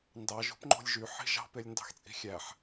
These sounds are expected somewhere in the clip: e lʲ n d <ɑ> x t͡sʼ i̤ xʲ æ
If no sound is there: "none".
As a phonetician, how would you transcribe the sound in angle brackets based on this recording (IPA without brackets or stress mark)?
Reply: ɑ̤